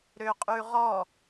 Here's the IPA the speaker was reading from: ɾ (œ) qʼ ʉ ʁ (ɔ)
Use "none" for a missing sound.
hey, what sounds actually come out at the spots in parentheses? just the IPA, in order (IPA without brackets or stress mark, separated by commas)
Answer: ø, ɔ